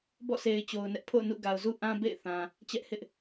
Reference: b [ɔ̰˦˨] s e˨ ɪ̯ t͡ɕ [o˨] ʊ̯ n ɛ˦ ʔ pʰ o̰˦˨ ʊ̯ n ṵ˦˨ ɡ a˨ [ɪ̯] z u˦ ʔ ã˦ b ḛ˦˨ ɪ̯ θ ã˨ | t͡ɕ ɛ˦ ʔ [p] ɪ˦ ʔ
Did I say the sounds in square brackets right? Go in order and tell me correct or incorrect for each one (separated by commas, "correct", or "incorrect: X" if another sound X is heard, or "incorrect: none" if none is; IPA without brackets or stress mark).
correct, correct, incorrect: ʊ̯, incorrect: h